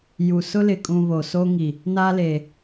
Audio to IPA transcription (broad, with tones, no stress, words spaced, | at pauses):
ju˨ sʊ˦lɪ˨kʼũ˨ βo˨so˦ ŋi˨ | na˦le˨